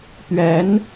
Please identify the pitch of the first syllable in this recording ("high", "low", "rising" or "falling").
rising